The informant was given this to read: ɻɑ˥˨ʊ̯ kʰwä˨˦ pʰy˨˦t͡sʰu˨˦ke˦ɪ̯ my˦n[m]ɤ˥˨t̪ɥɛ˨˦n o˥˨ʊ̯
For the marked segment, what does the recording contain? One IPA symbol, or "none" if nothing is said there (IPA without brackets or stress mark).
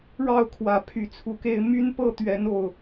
p